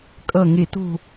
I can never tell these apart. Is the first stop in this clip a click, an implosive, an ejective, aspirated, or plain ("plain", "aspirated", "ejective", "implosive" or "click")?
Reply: ejective